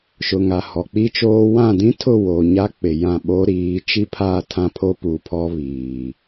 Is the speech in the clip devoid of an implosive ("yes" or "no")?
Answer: no